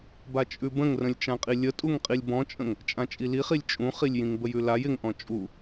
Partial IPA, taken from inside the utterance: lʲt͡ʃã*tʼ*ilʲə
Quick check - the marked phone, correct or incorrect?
incorrect